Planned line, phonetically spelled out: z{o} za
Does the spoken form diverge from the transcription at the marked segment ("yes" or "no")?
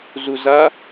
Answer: yes